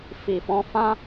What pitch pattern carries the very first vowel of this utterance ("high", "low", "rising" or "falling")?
low